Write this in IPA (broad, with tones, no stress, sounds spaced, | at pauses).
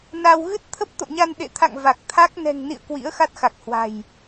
n a˧ w ɣ ɨ˦˥ t̚ t̪ʰ ə˦˥ p̚ t̪ o̰˧˨ ɲ a˧ n ɗ ḛ˧˨ t̪ʰ a̰˧˨ ŋ v a˨˩ k̚ t̪ʰ a˦˥ k̚ n ɛ̤˨˩ ŋ n ḭ˧˨ ə̯ k w ḭ˧˥ ə̯ x a˦˥ t̚ x a˨˩ k̚ h w a̤˨˩ j